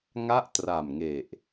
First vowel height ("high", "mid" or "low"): low